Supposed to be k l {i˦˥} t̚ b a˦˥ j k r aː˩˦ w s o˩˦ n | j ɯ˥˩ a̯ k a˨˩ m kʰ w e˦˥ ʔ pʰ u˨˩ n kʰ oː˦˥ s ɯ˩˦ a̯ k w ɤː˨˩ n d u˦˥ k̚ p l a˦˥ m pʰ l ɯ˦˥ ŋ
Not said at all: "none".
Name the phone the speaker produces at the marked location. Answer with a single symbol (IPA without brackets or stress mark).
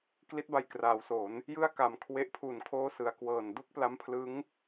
i˦˥